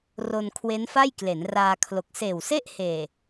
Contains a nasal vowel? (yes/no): no